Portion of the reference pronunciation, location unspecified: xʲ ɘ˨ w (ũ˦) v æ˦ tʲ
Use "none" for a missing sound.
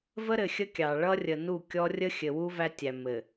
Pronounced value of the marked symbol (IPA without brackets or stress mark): u˦